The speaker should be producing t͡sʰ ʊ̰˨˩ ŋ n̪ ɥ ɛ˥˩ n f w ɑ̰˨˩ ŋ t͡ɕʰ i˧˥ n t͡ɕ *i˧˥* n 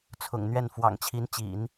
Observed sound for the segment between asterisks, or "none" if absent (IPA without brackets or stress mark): ḭ˨˩˦